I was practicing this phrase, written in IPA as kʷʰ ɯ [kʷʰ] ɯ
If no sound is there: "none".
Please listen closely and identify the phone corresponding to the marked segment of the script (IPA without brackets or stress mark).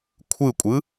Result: kʷʼ